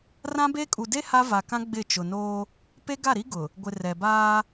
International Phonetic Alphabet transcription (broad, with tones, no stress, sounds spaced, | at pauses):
r ã˦ b e˦ kʼ u˨ d e˦ h a˦ v a˨ k ã˦ ɡ͡b ɪ˦˨ t͡ʃ ʊ˨ n oː˦ | p e˦ ɡ a˦˨ ɾ i˦ ɡ ʊ˨ | ɡʷ ɪ˨ r ɛ˨ b aː˦